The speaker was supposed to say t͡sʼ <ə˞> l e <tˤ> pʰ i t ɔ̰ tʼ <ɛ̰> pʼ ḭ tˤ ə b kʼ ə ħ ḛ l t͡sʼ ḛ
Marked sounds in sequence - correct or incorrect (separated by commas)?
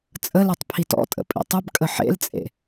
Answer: incorrect, correct, incorrect